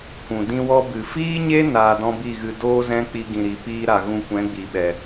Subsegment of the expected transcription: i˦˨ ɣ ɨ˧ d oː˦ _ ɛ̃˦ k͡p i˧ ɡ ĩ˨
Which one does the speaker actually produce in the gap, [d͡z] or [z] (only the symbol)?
z